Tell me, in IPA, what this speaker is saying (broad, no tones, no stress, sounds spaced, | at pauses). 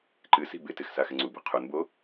ǃ ɨ s i̤ b ɪ t ɪ x s a x ɪ ŋ͡ǀ u b ɛ̤ qʰ u n b o